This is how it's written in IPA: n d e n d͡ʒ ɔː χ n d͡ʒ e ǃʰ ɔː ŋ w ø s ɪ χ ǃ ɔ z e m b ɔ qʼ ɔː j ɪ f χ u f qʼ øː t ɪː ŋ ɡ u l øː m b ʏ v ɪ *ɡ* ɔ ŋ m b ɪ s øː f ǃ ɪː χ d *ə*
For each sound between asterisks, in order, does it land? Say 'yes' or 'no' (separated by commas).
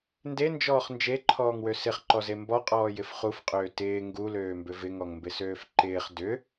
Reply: no, no